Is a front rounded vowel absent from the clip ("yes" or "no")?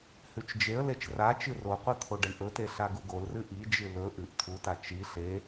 yes